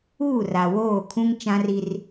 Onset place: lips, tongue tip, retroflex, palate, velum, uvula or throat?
tongue tip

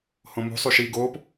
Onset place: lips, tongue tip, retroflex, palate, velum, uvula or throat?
throat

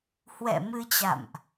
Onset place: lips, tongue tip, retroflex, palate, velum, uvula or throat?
throat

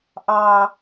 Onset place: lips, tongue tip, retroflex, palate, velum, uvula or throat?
throat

